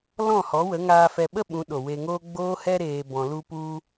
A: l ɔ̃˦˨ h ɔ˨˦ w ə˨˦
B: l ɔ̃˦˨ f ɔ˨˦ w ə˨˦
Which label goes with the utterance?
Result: A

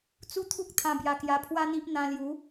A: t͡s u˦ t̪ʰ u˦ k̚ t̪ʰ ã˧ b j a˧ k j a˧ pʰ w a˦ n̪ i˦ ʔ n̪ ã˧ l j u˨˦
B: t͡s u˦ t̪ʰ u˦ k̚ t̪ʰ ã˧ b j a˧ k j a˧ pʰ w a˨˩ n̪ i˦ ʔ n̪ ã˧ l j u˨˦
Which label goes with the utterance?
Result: A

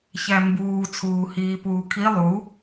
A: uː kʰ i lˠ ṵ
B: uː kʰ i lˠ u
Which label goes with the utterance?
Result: B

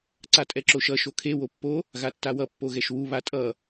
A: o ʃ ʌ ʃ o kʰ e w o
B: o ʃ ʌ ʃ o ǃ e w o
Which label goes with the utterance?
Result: A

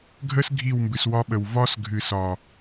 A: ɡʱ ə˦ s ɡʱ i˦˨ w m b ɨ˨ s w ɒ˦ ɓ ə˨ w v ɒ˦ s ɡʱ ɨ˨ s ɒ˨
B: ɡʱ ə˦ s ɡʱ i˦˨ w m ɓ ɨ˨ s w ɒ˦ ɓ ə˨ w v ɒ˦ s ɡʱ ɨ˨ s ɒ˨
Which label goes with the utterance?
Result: A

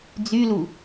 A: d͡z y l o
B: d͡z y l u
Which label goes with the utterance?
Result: B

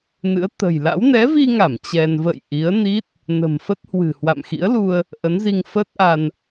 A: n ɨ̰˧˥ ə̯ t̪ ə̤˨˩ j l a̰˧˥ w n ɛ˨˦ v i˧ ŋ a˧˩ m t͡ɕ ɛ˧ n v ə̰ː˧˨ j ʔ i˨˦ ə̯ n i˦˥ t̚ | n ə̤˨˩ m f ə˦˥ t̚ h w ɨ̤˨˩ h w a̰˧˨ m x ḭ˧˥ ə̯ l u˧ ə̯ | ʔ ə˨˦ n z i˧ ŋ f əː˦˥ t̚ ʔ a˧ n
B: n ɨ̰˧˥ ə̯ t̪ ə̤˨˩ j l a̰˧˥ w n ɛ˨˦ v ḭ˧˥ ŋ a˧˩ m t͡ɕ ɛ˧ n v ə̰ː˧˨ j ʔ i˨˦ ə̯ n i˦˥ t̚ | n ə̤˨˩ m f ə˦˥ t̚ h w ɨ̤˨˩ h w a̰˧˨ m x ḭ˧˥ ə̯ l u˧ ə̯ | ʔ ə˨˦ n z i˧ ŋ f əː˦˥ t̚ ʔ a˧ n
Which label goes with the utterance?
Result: A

